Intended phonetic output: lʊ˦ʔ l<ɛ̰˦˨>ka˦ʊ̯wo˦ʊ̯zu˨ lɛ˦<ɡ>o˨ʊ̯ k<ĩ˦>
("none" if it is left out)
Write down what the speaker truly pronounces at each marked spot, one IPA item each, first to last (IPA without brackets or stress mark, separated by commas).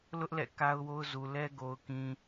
ɛ̰˦˨, ɡ, ĩ˨